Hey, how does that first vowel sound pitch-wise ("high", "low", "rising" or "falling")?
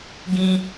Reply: high